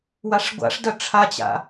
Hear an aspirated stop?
yes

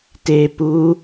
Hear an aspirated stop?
no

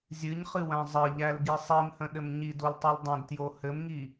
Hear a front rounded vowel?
no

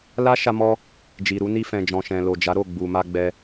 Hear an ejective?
no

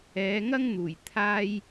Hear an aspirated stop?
yes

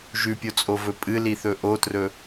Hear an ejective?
yes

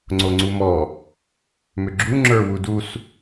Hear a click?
yes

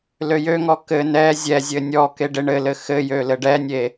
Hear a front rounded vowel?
yes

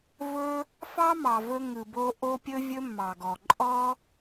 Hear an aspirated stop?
no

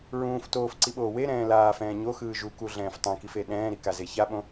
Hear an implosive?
yes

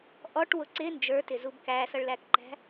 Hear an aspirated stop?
no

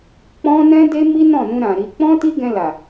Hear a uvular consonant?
no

